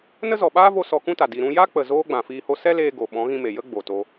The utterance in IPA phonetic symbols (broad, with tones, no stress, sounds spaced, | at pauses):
n ə˦ z ɔ˨ ɓ aː˦ v o˧ s ɔ˧ k ũ˦ t a˨ d i˨ ɾ ũ˧ j a˦ k͡p ə˨ z oː˦ ɡ͡b ã˨ f iː˧ h o˦ s ɛ˦ l eː˧ ɡ o˨ ɓ ɔ̃˨˦ ɣ ĩ˧ m e˨ j ə˦ ɡ͡b o˨ t o˧